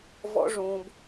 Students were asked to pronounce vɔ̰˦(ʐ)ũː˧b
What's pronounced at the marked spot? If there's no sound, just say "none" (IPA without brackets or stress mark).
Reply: ʐ